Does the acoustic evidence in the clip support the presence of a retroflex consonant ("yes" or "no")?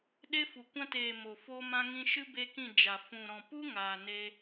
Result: no